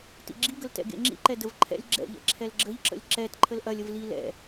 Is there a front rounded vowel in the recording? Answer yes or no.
no